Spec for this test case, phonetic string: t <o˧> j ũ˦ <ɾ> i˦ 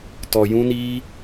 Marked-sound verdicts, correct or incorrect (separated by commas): incorrect, incorrect